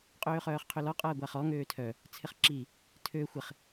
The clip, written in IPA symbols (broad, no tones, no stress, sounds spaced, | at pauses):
qʼ øː χ œː χ qʰ ø l ɔ qʼ ɐː ɡʷ a χ ɔ ŋ øː tʰ œ | t͡sʰ ɪ χ ǁ i | tʰ ø xʷ ɪ χ